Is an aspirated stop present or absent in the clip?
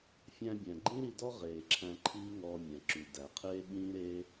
present